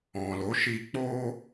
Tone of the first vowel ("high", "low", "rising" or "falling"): low